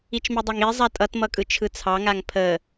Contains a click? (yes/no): no